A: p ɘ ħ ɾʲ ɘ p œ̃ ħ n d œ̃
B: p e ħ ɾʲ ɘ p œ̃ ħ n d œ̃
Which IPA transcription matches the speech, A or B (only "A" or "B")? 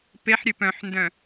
B